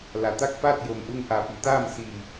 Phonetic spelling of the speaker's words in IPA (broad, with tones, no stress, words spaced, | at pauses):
la˩˧t̪a˥˨k̚paː˥˨t̚ jo˩mʔu˧ŋ ʔa˧˩pi˩˧ t̪aː˥˨msiː˧˩